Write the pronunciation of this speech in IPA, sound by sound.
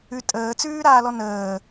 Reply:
ʉ tʼ əː t͡s ʉː ɾ aː l ɔ n əː

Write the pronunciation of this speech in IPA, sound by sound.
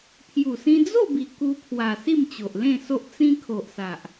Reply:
pʰ j u˨˩ s ĩ˧ d͡z o˥˧ b i˨˩ k u˧ pʰ w a˨˩ s i˥˧ m t͡ɕ o˨ ʔ l ẽ˥˧ s o˦ ʔ t͡s ĩ˧ kʰ o˨ ʔ s a˨ ʔ

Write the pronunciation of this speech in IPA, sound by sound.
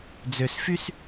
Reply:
d͡z ø s f y s

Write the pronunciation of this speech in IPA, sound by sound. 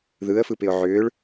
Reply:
ð ɯ ə̯ f ɯ p ɪ ʊ̯ ʕ ʏː ɭ

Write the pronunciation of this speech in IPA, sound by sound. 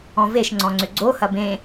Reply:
ɔ̃ v e ʃ ŋ͡ǀ ɔ̃ ŋ͡ǀ ʏ ɡ͡ǀ o h ɐ b ẽ

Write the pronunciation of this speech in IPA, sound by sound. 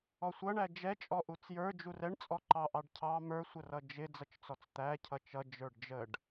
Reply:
ɔ sʷ ʌ ɳ æ d͡ʒ ɛ t͡ʃʼ ɔ ʔ u t͡s j ə˞ d͡ʒ u r ɛ ɳ t͡sʼ ɔ ǃ ɑ ʔ ɑ ɖ cʰ ɑ m ə˞ sʷ ə r ʌ d͡ʒ ɪ d͡z ʌ t͡ʃ t͡s ɔ t͡s t̪ æ cʰ ʌ t͡ʃ ʌ d͡ʒ ə˞ ɖ d͡ʒ ə ɖ

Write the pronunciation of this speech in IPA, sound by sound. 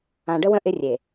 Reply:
ã˨ ɖ ə˦ w ə̃˦ ʔ ɪ˦ rʲ e˨

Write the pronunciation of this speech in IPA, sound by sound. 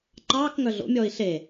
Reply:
ǃ ɑː k ŋ œ ɮ o̰ mʲ ɔː i̯ ɬ e

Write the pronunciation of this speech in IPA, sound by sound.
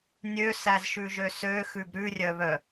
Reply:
nʲ ø s æ z ʃ ʉ ʒ ø s ø x ʉ b ɾ ʉ rʲ œ β œ

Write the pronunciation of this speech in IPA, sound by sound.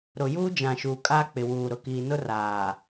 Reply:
ɾ ʊ˨ j uː˦ d͡ʒ ã˨ ʃ uː˨ kʼ aː˦ k͡p ɪ˨ w uː˨ ɾ ʊ˨ k iː˨ n ʊ˦ r aː˨

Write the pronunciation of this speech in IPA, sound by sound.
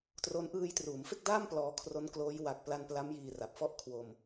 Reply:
t r o˦˥ n ʔ ɯː˧ j t r uː˩˦ m f e˥˩ k̚ d aː˥˩ m p l ɔː˧ kʰ r o˦˥ n k l oː˦˥ j w a˨˩ k̚ p l a˧ n p l a˦˥ m j iː˧ r a˨˩ p̚ f ɔ˥˩ ʔ kʰ w o˧ m

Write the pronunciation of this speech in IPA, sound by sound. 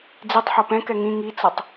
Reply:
d͡z i tˤ ħ o p ɛ̃ k ɛ ŋ ĩ ŋ i t͡s ɤ tˤ

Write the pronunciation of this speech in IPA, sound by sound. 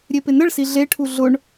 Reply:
ɾʲ e p ɪ n ə ɭ s i ɮ e ʈʰ u ɮ ʊ ɳ

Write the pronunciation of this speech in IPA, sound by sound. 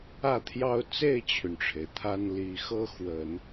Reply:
ä˥˩ t̪ʰ j ɑ˥ ʊ̯ t͡s e˥˩ ɪ̯ t͡ɕʰ y˩ n ʈ͡ʂʰ e˩ ɪ̯ t̪ʰ a˥ n l i˧˥ x ɤ˥ x w ə˨˩˦ n

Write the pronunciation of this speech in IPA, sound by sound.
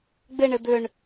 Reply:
ɡ͡b ɪ ɳ ɪ d̪ ʏ ɳ

